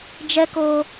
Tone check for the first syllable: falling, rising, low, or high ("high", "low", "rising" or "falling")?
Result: high